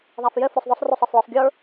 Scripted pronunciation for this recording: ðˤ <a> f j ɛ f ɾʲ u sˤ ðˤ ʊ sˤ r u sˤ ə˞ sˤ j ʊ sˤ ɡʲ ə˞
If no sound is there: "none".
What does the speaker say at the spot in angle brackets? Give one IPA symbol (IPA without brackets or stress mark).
a